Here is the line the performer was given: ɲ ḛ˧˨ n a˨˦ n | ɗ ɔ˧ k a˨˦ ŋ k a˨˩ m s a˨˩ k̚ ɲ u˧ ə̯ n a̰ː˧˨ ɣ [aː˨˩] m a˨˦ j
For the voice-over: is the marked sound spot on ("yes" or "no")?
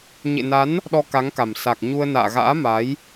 no